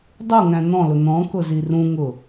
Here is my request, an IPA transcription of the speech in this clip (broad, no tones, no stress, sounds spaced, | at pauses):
dˤ u ŋ æ̃ n̪ ɔ̃ l ʊ n̪ ɔ̃ k ʊ z i r ũ ŋ ʊ